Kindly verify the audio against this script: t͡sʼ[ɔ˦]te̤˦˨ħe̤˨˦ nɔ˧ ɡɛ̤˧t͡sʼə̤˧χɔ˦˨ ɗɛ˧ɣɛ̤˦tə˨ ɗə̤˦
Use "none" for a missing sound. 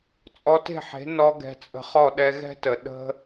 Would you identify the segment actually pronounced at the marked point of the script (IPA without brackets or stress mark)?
ɔ˧